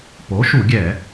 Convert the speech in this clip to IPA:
po˩˥ʃu˧˩˧ɡʲɛ˧˩˧

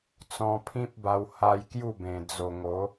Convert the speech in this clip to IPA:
t͡sɔ̃˧pʰĩ˦p̚ba˧w ha˧j kju˥˧bẽ˨˩ d͡zo˨˩ŋo˨˦

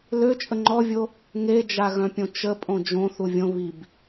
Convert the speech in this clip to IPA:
løt͡ʃʼə ŋ͡ǃɔvʲo | ŋed͡ʒaɣœ̃pʲõ t͡ʃəpʼõ d͡ʒõθu vʲõ βib

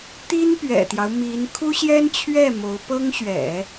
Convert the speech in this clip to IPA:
t̪i˥npɥɛ̰˨˩t̪jɑ˦ʊ̯ mi˧˥n kʰu˥ɕjɛ˥nt͡ɕʰɥɛ˥˩ mo˧˥ʊ̯pɤ˥ŋɕɥɛ̰˨˩˦

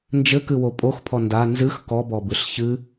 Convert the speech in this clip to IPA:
nd͡ʒɘkɨwo pʼoxpʰɔ nda nzɨx kɔbɔbɨɬ çɨ

